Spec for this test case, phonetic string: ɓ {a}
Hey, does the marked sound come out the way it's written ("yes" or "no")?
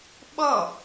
no